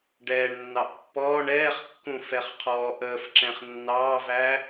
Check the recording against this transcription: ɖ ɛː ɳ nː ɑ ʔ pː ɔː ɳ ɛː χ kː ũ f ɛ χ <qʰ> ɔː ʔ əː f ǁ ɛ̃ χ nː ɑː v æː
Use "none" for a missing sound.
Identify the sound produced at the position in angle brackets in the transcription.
qʰ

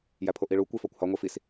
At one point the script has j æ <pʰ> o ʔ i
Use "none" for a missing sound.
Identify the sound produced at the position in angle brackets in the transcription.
pʰ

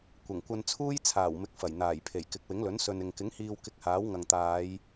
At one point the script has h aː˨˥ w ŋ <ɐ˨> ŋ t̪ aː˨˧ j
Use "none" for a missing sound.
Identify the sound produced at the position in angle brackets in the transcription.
ɐ˨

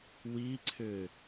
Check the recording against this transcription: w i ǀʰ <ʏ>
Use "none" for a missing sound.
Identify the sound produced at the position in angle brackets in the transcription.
ʏ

